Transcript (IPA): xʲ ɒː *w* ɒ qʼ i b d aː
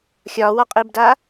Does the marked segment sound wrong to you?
no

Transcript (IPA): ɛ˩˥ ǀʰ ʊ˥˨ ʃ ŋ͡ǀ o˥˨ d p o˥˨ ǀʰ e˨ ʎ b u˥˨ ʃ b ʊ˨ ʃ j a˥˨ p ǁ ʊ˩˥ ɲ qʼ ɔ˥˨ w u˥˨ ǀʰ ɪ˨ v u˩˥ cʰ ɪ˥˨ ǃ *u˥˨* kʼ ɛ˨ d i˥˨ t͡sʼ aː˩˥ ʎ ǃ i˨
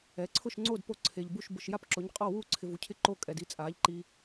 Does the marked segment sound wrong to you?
yes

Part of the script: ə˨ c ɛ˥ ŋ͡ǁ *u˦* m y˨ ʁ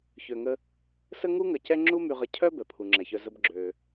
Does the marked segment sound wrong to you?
yes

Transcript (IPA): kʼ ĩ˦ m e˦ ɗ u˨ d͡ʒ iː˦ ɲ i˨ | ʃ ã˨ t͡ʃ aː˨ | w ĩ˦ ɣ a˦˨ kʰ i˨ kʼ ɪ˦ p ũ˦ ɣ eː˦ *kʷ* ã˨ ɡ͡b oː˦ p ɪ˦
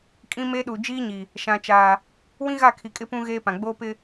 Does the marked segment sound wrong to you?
yes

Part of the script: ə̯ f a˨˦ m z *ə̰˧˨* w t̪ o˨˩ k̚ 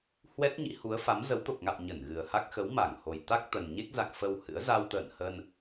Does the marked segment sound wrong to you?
yes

